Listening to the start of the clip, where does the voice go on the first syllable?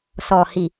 low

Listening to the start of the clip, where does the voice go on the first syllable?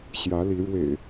rising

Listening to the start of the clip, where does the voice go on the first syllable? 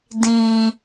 low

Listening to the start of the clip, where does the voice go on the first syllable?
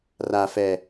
low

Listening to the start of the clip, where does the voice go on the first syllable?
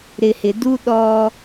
low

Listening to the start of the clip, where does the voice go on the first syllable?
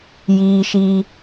high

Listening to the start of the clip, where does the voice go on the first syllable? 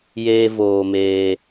high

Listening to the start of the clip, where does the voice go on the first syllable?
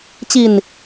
low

